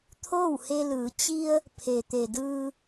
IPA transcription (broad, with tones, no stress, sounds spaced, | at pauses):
t̪ʰ oː˥˨ w h e˧ l ɯː˩˧ t͡ɕ i˧ ə̯ | pʰ e˩ t̪ e˩ d ɯː˧